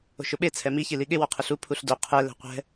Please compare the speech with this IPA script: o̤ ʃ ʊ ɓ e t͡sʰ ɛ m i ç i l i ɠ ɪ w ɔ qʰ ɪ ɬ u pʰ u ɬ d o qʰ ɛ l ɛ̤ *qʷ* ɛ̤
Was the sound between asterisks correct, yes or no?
yes